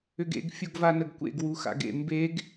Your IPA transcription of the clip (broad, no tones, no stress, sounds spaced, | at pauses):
ʏ ɡ ḛ ɡ fʲ u ɡ v a n ə ɡ kʷ ḛ ɡ w u x a̰ ɡ ḛ m b e ɡ